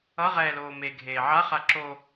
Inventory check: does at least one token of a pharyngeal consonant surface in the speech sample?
yes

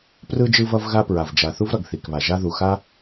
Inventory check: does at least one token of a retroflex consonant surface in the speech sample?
no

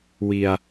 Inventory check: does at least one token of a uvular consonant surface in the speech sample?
no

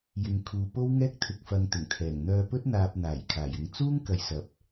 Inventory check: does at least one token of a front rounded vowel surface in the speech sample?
yes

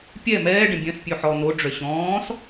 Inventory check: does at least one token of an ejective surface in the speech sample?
no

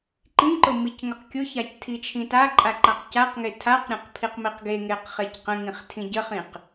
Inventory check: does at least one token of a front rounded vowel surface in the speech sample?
no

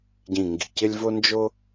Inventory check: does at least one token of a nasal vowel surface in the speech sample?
yes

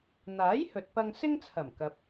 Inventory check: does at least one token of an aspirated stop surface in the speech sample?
yes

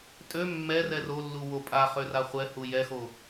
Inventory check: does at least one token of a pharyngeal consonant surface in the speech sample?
no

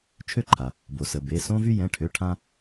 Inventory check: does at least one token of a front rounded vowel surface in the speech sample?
yes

